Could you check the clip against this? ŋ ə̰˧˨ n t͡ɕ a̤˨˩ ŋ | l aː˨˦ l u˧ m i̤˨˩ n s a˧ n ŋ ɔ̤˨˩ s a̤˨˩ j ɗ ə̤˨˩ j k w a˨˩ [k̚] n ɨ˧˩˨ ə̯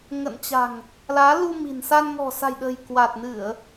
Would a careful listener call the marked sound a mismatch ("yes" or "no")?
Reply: yes